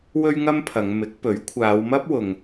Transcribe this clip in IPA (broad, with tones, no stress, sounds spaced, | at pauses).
w ɵ˥ ɥ ŋ ɐ˥ m pʰ ɐ˨˧ ŋ m ɪ˨˥ k̚ p ɵ˨˥ ɥ kʷʰ aː˨˧ w m ɐ˥ p̚ w ʊ˧ ŋ